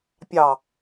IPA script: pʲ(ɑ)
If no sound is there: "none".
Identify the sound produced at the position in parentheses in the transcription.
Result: ɑ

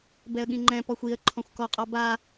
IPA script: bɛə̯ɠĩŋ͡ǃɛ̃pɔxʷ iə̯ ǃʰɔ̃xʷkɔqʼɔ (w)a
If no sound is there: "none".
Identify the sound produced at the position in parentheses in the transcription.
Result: b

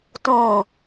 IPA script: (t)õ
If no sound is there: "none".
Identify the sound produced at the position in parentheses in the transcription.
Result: t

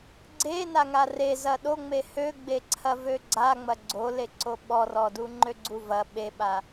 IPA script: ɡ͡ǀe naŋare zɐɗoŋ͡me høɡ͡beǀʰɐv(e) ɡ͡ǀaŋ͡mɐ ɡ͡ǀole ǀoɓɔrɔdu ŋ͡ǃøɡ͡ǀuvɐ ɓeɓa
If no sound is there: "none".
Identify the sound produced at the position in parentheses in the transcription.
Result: ø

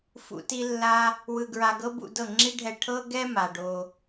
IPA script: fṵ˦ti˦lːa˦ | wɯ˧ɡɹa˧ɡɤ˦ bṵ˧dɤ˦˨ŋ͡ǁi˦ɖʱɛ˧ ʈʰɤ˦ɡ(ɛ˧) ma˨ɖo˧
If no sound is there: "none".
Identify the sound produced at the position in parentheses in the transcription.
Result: ɛ˦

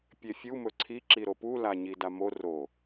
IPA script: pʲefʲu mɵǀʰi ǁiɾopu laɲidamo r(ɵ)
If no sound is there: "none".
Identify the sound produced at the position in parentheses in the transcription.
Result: o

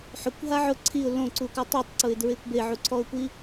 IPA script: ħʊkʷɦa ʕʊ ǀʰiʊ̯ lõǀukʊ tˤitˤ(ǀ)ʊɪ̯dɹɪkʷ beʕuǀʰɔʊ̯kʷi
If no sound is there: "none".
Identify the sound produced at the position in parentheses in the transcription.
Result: ǀ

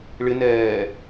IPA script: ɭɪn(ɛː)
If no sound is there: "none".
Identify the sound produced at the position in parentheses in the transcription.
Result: ɛː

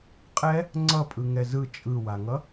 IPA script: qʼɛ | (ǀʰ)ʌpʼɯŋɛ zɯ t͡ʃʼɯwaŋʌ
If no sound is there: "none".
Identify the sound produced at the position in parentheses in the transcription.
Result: ŋ͡ǀ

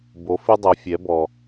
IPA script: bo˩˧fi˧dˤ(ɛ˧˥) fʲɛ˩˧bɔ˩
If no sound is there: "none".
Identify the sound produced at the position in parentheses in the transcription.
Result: ɛ˩˧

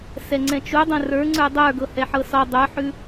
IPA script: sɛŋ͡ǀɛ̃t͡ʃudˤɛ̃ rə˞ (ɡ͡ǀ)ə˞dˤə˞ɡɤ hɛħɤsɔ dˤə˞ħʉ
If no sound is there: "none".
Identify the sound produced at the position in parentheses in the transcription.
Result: ŋ͡ǀ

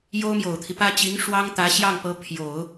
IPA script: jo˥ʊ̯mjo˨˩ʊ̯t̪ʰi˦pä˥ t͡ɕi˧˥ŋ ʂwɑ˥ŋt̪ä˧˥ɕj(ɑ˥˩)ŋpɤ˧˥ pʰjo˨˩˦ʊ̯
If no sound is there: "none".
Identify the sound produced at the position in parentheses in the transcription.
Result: ɑ˥˩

